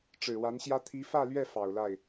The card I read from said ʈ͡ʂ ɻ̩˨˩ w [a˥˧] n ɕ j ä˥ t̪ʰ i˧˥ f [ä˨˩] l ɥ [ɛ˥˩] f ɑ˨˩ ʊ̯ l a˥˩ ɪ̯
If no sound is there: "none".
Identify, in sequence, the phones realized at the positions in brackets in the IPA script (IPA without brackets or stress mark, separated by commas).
a˧˥, ä˥˧, ɛ˥˩